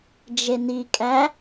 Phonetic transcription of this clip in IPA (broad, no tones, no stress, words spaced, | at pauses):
d͡ʒenikʼæ